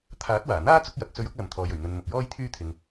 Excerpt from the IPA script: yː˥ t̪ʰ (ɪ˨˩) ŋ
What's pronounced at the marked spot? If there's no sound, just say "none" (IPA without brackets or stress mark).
ɪ˧